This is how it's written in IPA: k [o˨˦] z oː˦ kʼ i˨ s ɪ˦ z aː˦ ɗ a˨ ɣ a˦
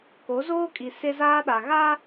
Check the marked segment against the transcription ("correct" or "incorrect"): correct